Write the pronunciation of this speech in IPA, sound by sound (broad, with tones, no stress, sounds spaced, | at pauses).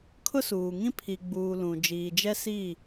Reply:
kʰ ʊ˦ s uː˨ ŋ ĩ˦ pʰ i˨ ɡ͡b uː˨ l ũ˨ d͡ʒ iː˨ d͡ʒ ɛ˦ s i˦˨